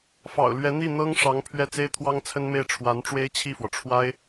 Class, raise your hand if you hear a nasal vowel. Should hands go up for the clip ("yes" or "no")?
no